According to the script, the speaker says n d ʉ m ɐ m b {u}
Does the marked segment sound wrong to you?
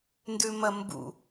yes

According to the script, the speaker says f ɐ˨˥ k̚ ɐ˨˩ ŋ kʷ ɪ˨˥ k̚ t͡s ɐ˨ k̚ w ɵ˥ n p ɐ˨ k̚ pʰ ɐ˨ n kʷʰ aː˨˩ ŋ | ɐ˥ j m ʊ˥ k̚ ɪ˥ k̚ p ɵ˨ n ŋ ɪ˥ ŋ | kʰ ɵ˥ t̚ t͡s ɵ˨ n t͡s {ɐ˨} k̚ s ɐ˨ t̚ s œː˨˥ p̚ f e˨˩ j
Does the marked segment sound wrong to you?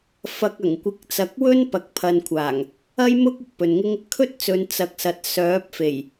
no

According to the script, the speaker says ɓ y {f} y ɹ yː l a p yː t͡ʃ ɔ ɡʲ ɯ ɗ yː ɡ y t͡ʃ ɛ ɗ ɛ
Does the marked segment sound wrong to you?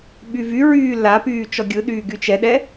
yes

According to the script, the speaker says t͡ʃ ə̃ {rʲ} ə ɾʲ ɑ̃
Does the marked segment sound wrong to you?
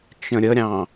yes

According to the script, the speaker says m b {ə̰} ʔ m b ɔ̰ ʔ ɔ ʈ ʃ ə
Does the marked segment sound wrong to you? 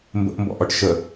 no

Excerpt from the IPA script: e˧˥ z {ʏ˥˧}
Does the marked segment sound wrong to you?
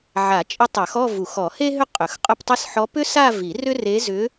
yes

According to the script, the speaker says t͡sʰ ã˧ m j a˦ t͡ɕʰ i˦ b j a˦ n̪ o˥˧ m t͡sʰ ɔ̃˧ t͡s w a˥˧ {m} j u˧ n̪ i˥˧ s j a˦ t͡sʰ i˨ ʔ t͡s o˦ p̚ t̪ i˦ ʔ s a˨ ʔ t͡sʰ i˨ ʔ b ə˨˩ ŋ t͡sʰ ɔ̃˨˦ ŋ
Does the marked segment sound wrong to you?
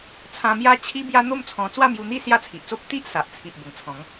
no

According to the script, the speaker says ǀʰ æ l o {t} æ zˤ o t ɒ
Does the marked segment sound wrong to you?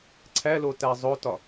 no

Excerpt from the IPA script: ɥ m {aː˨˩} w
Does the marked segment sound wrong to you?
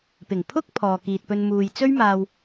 yes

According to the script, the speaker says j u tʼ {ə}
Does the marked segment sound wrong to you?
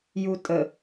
no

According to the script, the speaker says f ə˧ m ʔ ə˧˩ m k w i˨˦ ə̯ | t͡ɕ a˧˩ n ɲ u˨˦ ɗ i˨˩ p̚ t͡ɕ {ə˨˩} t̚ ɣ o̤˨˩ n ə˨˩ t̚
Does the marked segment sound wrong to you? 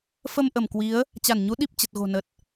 no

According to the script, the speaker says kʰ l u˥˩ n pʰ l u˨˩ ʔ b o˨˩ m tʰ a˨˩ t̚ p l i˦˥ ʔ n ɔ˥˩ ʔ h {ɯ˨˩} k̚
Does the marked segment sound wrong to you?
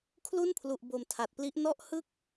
yes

